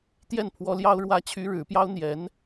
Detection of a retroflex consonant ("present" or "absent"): present